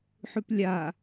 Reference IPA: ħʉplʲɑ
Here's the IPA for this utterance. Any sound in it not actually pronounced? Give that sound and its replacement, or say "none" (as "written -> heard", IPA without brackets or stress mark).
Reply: ɑ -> a